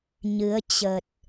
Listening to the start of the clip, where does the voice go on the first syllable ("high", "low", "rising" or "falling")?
rising